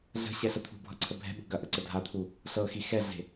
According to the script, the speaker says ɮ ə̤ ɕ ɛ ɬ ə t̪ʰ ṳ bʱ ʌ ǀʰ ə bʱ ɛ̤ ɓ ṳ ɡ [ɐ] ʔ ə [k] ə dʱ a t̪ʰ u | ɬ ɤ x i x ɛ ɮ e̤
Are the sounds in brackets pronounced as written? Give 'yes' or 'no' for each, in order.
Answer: yes, no

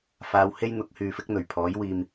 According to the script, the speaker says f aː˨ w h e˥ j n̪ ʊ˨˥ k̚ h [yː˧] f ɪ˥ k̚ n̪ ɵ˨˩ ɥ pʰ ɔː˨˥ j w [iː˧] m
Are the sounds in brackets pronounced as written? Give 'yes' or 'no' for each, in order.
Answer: no, yes

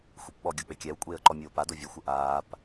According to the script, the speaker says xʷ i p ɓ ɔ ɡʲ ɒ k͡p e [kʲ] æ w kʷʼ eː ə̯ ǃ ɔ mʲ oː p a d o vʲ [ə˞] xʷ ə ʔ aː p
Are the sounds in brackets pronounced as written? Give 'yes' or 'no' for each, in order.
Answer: yes, yes

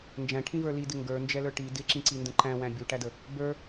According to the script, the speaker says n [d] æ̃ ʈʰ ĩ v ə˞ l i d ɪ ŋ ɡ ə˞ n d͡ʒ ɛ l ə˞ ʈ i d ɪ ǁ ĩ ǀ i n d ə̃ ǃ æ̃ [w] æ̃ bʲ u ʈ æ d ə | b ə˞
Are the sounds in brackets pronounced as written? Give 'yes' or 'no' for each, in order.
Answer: no, yes

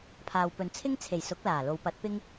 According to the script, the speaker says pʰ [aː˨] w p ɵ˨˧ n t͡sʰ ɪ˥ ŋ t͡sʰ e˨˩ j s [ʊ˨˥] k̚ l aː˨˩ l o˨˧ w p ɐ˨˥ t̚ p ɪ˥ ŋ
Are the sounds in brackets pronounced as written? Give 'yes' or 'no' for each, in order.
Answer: yes, yes

